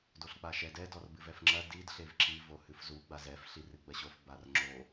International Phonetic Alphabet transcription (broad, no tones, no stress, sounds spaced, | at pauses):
d o ɬ k͡p a ʃ ɛ d ɛ d ɔ r b ɨ v ɛ f ŋ͡ǁ ɐ d i d ɬ e v ǁ i v o h ɨ f z u ɡ͡b a z ɛ f ɬ i r ɨ ɡ͡b ɐ ɕ o f b a r ŋ͡ǁ o